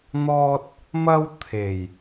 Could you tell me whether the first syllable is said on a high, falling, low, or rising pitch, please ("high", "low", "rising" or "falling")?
high